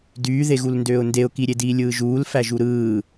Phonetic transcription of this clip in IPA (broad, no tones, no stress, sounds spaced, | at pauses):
d yː ð e ɣ u l n d øː ʊ̯ n d e ʊ̯ k i ɾʲ e d iː lʲ ɯː ʒ uː l f æ ʒ u ɾ ɯː